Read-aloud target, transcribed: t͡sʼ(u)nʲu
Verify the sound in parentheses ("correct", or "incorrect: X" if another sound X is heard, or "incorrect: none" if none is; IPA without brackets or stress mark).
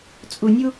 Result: correct